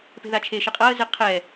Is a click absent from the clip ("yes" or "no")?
yes